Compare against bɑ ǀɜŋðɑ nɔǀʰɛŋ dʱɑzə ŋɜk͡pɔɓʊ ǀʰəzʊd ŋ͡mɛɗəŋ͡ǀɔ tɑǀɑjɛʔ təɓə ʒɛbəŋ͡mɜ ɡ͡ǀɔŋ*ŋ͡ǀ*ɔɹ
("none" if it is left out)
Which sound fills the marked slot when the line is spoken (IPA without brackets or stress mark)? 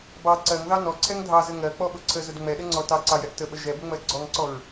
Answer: ǀ